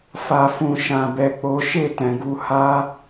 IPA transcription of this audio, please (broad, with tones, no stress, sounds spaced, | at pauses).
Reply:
f a˨ f ũ˨ ʃ ã˨ b ɛ˨ k͡p o˨˦ ʃ e˦˨ t ɛ̃˨ ɡ u˨˦ h a˦